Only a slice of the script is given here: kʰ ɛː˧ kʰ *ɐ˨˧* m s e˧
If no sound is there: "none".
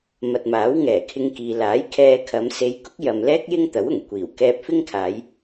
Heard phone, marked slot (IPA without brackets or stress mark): ɐ˨˧